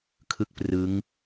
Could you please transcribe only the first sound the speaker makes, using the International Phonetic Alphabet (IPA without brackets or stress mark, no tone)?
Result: kʰ